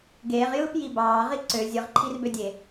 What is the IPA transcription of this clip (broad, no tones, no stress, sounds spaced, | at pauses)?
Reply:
ɡ eː ʁ j ɯː p j i b ɑː ʁ i ǀ ø zʲ ɯ ʁ ǃʰ i r b ø dʲ e